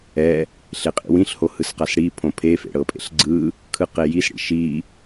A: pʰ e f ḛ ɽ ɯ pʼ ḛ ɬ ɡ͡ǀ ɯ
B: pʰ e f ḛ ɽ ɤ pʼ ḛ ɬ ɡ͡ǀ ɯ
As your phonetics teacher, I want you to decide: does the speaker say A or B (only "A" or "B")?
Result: B